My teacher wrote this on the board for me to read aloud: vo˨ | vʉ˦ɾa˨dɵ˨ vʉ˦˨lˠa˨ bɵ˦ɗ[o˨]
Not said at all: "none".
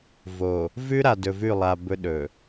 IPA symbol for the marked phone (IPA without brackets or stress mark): ɵ˨